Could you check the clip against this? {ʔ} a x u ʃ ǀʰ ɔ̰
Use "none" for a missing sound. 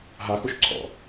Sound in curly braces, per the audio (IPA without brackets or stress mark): ɦ